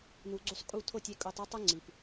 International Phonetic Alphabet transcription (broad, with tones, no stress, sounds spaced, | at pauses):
n u˨ ɡ͡ǀ u˧ sˤ kʼ u˦˨ tʰ o˦˨ tʲ e˧ kʼ o˧ tˤ e˦ tˤ u˦ ŋ͡ǀ i˨ p